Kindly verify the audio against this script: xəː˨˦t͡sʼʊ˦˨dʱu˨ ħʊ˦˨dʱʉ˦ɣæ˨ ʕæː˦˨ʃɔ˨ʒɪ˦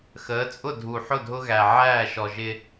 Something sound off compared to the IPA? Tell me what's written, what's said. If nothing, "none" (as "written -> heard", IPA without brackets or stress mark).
ʉ˦ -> ʊ˦